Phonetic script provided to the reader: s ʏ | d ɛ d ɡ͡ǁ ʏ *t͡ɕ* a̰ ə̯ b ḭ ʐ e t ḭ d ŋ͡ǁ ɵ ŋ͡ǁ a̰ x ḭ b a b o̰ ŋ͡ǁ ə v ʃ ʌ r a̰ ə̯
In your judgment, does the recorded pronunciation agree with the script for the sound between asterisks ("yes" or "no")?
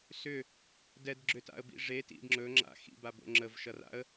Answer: no